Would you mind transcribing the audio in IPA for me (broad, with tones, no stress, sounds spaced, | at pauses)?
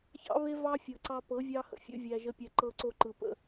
ç ɑ̰˦ β e˦ v ɑ˦ fʲ ɤ˨ ǀ ɑ˧ p ɤ˨˦ vʲ ɑ˧ h ə̰˨ fʲ ṵ˦ vʲ æ˧ ʒ ə˧ pʲ æ˧ ǃ ɤ˧ ǀ o˧ ǃ ɯ˨ p ə̰˧